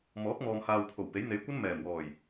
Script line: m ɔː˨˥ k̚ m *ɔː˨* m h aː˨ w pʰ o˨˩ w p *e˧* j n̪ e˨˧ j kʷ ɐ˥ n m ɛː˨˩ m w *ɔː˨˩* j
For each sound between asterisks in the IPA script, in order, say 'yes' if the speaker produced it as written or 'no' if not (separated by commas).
yes, no, yes